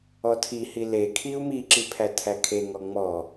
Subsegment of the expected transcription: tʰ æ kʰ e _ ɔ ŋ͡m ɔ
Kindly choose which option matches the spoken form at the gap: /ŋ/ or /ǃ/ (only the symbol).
ŋ